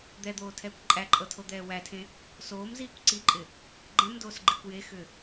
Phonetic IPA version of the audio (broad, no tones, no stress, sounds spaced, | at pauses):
d̪ ɛ d̪ oː tʰ ɛː kʷ ǃʼ æ ǃʼ ɤ tʰ o d̪ ɛː w æ tʰ ẽ | s oː m z iː kʷ ǀ i ǃʼ ɪ | ɡ͡ǃ ɛ̃ m d oː s ɡ͡ǃ i kʷ j e x ʏ